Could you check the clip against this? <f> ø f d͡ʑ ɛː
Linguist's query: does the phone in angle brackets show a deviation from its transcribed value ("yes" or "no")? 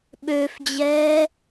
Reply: yes